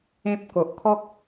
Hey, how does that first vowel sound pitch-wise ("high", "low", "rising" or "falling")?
high